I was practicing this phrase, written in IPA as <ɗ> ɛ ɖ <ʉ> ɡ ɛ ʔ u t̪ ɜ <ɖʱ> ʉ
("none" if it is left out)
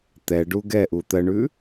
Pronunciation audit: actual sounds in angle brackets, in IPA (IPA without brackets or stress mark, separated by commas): t̪, u, ɳ